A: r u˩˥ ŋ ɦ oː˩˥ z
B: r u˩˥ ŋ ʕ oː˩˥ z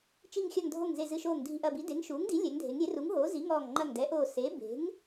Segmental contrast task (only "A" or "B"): A